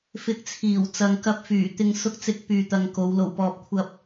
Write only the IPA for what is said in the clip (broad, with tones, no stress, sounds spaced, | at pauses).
f ɪ˧ k̚ t͡sʰ iː˨˩ w t͡s ɐ˨ ŋ k ɐ˧ p̚ f yː˨˩ t̪ ɪ˧ ŋ s ʊ˥ k̚ t͡s ɪ˥ k̚ p yː˧ t̪ ɐ˧ ŋ k o˨˧ w l o˨˩ w p ɔː˨ p̚ kʷʰ ɐ˧ p̚